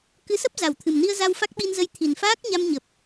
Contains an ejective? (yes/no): no